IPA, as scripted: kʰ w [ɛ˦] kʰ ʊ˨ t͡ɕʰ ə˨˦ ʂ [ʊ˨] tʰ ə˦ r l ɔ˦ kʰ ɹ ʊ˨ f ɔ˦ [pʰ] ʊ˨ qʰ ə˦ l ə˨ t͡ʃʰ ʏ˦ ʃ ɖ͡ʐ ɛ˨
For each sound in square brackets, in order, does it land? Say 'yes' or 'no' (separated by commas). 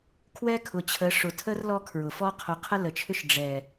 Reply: yes, yes, no